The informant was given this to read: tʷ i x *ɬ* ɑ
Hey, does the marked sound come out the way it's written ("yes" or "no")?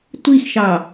no